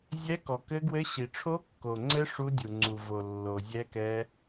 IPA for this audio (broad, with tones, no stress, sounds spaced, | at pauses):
zʲ ɛ˦˥ k ɔ˨ k ɘ˦˥ ɡ w ɘ˦˥ ɕ i˨ ʈ͡ʂʰ o˦˥ kː o˨ ŋ͡ǀ ɘ˦˥ ʂ u˦˥ dʲ u˨ ŋ͡ǀ u˨ v o˨ lː o˨ zʲ ɛ˦˥ k ɛ˦˥